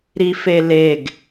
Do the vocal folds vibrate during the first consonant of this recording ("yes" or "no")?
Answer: yes